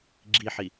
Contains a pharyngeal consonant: yes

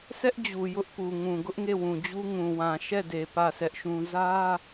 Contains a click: no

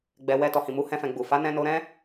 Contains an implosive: no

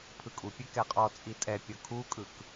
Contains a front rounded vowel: no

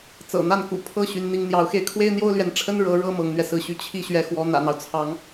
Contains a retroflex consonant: yes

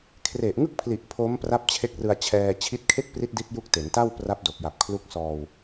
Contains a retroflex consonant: no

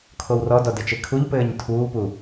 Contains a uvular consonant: no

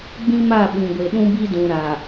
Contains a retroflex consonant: no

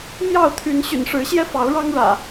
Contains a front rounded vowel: yes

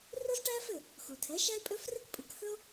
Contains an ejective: yes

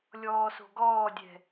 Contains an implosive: no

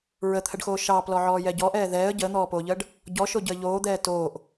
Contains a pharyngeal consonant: yes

